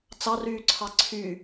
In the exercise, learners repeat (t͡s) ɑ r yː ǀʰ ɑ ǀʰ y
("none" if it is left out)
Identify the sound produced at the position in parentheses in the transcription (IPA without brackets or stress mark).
t͡s